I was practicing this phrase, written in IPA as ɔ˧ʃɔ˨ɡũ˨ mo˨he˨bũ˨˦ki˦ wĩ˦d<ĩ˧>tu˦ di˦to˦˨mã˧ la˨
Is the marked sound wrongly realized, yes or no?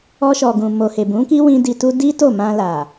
yes